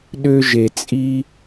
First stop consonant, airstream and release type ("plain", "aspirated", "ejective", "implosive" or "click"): implosive